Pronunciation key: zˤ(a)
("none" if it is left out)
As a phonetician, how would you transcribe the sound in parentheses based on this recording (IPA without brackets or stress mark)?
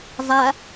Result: a